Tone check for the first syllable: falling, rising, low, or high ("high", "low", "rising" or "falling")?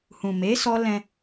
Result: low